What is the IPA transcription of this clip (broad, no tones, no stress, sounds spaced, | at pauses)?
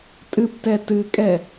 tʼ ɨ p t ɛ t ɨ kʼ ɛ